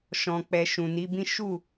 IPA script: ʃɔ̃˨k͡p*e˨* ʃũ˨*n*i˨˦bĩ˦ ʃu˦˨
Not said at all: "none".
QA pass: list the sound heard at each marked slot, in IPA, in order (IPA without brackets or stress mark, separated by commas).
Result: ɛ˨, n